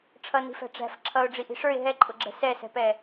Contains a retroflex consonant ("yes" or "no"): yes